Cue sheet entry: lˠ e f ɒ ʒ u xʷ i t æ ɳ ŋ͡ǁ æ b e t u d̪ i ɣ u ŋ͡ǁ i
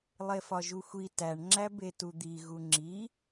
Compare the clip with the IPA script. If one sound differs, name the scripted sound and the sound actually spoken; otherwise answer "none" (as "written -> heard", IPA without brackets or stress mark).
none